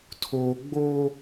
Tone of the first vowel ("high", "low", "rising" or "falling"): low